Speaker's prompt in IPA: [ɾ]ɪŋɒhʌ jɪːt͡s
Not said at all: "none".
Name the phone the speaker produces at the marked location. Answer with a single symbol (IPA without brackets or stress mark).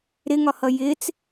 ɾ